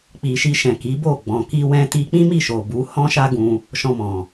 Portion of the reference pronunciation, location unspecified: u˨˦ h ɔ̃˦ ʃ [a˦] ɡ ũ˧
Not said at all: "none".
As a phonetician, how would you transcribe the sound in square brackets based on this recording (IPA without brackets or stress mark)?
a˦